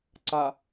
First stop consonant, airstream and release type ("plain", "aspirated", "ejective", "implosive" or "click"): click